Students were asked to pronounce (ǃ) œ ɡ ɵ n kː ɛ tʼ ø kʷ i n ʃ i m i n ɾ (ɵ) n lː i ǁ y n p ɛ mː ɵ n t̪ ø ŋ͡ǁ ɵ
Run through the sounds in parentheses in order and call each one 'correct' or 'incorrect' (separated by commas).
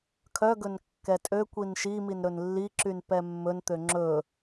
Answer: incorrect, correct